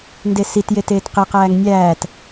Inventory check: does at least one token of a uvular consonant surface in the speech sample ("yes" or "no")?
yes